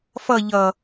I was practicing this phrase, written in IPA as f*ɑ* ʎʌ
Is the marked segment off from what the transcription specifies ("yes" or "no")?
yes